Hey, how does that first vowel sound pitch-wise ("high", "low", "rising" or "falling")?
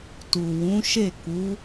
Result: low